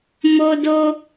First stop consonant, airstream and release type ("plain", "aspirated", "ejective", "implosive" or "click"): plain